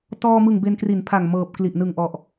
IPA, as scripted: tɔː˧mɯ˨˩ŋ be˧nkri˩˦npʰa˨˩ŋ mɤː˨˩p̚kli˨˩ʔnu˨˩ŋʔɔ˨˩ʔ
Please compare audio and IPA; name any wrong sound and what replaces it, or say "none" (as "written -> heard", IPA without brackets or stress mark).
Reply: u˨˩ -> ɯ˨˩